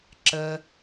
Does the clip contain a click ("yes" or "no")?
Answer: yes